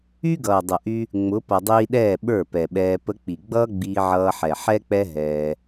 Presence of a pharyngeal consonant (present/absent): present